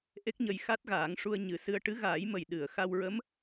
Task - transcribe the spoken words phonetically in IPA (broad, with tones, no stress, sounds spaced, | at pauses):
ʔ e˦˥ k̚ ɲ ə˧ j x a˦˥ t̚ ɣ aː˨˩˦ ŋ ʂ u˧ ə̯ ɲ ɨ˨˩˦ s ɨ˧ ə̯ ʈ ɨ˧˥ ɣ aː˨˩˦ j m ə˨˩ j ɗ ɨ˨˩˨ ə̯ x a˧ w ɹ ə˧˥ m